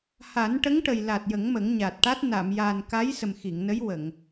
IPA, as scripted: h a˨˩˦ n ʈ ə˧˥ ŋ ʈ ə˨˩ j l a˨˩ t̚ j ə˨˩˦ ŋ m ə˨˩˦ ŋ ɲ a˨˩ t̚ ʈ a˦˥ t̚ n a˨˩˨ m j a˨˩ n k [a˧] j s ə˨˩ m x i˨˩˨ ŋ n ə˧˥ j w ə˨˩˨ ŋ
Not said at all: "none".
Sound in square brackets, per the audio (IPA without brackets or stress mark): a˧˥